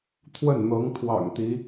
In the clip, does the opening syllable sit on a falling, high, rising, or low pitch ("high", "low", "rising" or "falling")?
falling